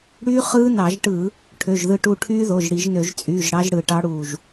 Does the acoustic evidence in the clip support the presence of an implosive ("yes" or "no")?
no